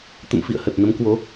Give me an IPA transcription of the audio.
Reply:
t̪ ə̰˧˨ m f ḭ˧˨ ə̯ h ə˨˩ t̚ n ə˨˦ m k w o˨˦

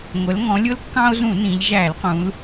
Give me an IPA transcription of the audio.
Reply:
ŋʷ ə˩˧ l ŋ ɔ̃˩˧ lʲ ʊ˦ l kː ɑ̃˦ o̯ z ũ˧˩˧ n ĩ˩˧ ʎ ʒ æ˧˩˧ l q ũ˩˧ l

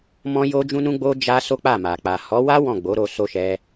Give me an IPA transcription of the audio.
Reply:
m ɔ̃˦ j o˦ d͡ʒ ũ˦ n ũ˦ ɡ͡b o˦ d͡ʒ a˦ s o˦ k͡p a˦˨ m a˨ k͡p a˨ h ɔ˨˦ w a˦ w ɔ̃˦˨ ɡ͡b o˨˦ ɾ o˧ s o˦ ʃ ɛ˦

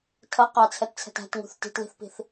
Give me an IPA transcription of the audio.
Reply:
tʰ ʌ q ɑ t͡sʰ ɛ t t͡sʰ ɛ̤ t æ̤ t ŋ ṳ θ t i̤ t l i̤ θ p i̤ θ

